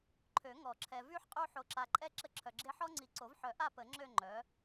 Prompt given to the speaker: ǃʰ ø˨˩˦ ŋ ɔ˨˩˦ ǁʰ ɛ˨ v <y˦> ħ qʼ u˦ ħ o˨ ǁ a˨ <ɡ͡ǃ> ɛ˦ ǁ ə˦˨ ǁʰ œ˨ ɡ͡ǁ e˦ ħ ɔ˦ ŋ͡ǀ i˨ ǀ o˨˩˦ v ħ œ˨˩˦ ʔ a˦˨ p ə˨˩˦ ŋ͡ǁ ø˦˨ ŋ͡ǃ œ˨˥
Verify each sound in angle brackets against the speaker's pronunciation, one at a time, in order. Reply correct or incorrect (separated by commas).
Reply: correct, incorrect